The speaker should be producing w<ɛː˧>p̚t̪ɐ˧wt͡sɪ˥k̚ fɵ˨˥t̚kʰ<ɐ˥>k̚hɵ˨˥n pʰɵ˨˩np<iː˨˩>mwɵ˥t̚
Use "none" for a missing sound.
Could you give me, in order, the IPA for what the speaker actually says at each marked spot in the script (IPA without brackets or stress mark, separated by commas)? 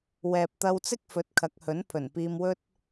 ɛː˨, ɐ˨˥, iː˧